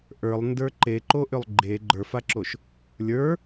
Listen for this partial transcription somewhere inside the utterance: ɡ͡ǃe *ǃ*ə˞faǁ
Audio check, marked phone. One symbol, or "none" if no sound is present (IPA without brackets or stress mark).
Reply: ɡ͡ǃ